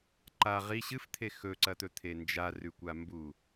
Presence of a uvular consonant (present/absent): present